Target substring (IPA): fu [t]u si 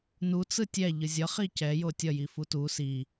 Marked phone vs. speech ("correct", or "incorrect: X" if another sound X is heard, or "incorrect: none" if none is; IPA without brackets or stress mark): correct